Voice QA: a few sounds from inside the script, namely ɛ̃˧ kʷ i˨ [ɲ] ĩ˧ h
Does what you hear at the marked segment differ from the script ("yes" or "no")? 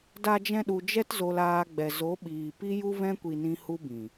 yes